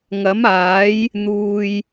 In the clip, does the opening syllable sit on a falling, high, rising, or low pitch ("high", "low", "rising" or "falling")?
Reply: rising